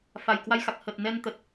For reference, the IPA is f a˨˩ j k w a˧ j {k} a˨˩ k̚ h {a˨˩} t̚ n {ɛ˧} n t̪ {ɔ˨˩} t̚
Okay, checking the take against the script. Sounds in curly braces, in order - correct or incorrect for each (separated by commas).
incorrect, incorrect, correct, incorrect